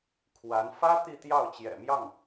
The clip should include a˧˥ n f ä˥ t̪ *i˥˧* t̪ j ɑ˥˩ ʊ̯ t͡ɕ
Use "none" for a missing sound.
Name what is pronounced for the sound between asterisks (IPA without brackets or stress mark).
i˥˧